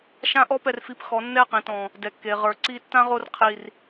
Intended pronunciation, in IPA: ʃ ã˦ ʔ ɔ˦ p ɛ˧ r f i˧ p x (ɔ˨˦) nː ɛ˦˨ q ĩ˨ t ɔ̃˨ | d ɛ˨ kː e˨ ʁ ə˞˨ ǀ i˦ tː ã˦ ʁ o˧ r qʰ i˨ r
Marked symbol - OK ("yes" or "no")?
yes